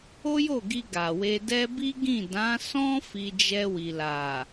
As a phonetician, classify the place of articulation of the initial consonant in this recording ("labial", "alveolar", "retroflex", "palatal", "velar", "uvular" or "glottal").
palatal